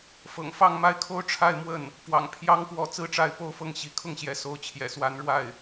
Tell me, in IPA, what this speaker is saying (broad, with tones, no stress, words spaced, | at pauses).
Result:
fɤ̰˨˩ŋfɑ˥˧ŋma˥˧ɪ̯kʰo˥˧ʊ̯ ʈ͡ʂʰa˥˧ɪ̯mwə˥˩n | pwɑ̰˨˩ŋpʰjɑ˥ŋ pwɔ˥˧ t͡sɹ̩˥˧ʈ͡ʂa˥˧ɪ̯po˥˧ʊ̯fɤ˥˩ŋ ɕi˧˥kʰʊ˥˩ŋɕjɛ˧˥ so˧˥ʊ̯t͡ɕʰjɛ̰˨˩swa˧˥n ɻwa˥˩ɪ̯